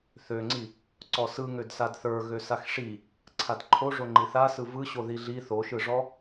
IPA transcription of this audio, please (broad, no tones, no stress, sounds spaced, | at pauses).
θ ø ŋ͡ǀ i | ǀ ɔ s ɯ ŋ ø d s a d θ ə˞ ɣ ø s a x ʂ i | ǀʰ a d ǃʰ o ʐ o ŋ͡ǃ i θ a s ɯ v ɯ ɕ o ð i ɮ i θ o ʃ ɯ ʐ ɔ